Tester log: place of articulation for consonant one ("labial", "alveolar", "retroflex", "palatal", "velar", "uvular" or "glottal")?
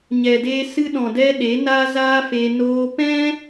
palatal